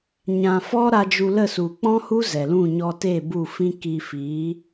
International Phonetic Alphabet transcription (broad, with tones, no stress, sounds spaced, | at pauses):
ɲ ã˨ f ɔ˦ ɾ a˧ d͡ʒ u˧ l ə˦˨ s u˨ k͡p ɔ̃˦ h u˦ z ɛ˨ l ũ˦˨ ɲ ɔ˧ t e˦˨ b u˦˨ f ĩ˦ k i˧ f i˨˦